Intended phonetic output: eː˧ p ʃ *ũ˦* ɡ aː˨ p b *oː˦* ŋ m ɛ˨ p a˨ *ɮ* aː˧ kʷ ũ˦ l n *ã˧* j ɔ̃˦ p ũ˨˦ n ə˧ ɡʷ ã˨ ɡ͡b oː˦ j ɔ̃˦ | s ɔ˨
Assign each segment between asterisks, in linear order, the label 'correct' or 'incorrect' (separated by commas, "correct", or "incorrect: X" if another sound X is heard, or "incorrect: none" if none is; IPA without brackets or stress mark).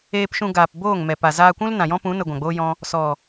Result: incorrect: ũ˧, incorrect: oː˦˨, incorrect: z, incorrect: ã˨